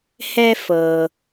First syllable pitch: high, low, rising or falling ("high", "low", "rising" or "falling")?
high